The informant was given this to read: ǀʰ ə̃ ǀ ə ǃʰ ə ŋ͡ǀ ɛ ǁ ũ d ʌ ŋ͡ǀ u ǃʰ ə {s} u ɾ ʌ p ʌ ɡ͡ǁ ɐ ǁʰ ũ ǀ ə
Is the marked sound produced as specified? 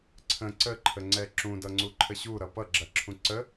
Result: no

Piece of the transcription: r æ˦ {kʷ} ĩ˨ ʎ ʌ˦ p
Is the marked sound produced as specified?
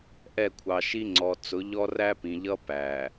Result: no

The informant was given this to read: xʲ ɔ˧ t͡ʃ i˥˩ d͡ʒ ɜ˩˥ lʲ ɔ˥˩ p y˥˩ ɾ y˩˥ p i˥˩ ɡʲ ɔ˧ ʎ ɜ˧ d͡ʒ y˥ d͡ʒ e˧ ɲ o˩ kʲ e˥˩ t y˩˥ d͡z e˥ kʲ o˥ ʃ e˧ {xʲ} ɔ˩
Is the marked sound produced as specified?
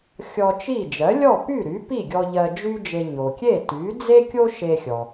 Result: yes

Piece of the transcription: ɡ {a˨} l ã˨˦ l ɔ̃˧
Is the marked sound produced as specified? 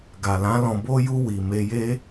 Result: yes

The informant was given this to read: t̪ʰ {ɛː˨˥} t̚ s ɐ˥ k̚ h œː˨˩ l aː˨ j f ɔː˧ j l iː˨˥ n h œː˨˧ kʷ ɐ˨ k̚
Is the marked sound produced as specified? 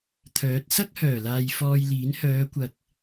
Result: no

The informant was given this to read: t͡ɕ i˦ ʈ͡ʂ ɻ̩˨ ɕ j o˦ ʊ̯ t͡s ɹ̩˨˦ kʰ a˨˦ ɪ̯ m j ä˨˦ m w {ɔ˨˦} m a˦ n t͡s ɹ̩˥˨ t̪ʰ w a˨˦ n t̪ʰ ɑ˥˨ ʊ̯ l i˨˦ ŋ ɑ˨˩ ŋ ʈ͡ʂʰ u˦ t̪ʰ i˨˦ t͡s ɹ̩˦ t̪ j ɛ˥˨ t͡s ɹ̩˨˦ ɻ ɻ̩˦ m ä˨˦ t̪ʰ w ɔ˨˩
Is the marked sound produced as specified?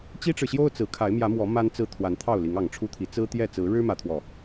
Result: yes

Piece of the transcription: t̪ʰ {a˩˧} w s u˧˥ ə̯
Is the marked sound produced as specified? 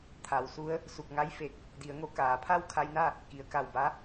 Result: yes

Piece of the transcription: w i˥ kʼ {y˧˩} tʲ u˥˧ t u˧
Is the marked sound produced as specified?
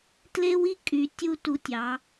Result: no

